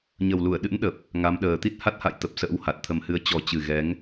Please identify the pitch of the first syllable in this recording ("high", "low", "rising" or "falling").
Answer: low